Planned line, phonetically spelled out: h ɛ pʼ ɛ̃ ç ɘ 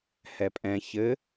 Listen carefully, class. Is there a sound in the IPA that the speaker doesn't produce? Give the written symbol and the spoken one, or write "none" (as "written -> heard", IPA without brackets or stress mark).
none